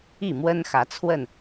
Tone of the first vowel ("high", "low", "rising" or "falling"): falling